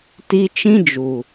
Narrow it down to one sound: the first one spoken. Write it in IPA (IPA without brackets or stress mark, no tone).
t